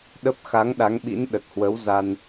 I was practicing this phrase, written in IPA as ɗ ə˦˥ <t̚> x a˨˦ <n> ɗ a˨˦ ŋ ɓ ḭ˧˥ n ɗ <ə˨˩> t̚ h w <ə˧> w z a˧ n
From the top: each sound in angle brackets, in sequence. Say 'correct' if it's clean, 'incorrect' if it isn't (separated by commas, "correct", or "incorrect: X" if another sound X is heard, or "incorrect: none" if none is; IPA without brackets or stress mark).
incorrect: p̚, incorrect: ŋ, correct, incorrect: ə˨˦